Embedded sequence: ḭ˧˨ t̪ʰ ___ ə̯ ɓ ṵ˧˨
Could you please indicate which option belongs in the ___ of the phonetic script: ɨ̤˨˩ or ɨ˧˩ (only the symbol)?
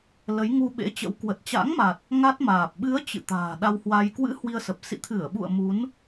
ɨ˧˩